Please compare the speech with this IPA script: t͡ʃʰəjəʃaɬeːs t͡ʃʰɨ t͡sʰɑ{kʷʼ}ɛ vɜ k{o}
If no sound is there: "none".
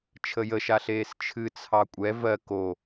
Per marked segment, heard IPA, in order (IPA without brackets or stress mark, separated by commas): kʷʼ, o